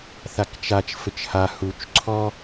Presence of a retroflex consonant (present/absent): absent